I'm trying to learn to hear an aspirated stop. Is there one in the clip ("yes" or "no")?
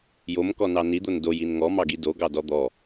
no